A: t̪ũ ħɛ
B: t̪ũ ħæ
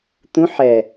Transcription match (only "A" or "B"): A